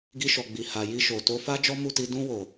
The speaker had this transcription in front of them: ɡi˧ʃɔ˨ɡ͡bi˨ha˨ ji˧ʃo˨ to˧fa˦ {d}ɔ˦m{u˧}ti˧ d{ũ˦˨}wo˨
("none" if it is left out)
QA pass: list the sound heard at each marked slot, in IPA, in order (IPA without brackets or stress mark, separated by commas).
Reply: d͡ʒ, u˦˨, ũ˧